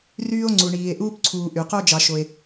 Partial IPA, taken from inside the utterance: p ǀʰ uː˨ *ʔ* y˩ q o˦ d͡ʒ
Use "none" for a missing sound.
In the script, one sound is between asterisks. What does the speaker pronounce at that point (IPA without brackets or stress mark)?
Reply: ʔ